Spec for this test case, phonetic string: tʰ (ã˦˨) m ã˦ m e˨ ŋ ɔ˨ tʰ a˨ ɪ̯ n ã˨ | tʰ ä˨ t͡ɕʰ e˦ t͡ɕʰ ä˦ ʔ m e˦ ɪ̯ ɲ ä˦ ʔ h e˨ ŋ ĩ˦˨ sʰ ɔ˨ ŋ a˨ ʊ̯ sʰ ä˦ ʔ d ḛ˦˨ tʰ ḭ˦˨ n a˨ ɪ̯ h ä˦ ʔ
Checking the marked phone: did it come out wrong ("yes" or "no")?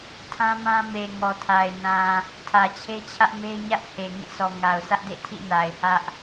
yes